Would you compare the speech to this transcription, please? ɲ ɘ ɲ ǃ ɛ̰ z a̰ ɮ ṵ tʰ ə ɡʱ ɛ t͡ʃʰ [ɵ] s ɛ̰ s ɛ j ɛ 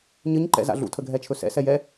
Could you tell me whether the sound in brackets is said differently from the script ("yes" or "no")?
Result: no